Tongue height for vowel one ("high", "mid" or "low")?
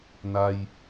low